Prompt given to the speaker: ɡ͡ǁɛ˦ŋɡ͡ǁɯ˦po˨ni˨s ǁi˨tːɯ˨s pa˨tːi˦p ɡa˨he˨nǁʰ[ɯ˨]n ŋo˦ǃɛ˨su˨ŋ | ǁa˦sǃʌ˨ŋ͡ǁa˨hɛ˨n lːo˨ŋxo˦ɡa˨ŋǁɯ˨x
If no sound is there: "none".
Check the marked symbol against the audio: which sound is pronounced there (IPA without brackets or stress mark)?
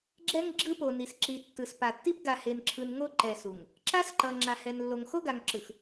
ɯ˨